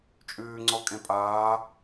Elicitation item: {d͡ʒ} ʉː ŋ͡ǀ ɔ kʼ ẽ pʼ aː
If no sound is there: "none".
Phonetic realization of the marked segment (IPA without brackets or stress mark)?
t͡ʃʼ